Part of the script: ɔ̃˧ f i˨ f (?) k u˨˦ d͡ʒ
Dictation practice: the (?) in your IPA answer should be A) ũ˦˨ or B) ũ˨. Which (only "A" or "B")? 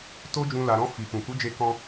B